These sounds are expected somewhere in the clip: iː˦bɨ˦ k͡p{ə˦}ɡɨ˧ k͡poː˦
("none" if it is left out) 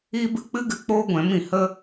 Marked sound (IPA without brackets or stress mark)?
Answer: ɨ˦